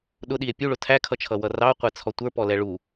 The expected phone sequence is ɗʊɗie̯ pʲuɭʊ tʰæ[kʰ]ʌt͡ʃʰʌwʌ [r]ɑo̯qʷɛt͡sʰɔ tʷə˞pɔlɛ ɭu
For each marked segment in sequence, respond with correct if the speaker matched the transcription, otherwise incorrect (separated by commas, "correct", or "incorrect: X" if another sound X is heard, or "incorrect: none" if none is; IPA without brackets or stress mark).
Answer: correct, correct